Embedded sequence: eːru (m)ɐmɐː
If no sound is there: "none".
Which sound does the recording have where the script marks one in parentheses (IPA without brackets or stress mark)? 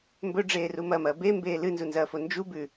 m